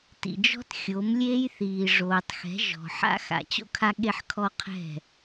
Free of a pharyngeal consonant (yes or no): no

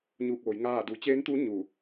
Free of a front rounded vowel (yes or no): yes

